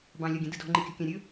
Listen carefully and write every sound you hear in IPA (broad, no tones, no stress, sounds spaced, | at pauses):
b ɑ̃ lʲ ɒ ɡʲ ə̃ d ɯ d ɔ̤ ŋ͡ǃ i kʲ ɔ̤ kʲ ɑ̃ ɾʲ ɵ